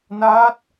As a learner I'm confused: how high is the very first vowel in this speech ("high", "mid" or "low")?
low